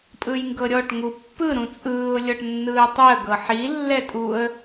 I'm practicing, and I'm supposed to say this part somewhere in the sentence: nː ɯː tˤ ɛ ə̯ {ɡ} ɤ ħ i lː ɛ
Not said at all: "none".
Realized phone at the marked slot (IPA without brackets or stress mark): ɡ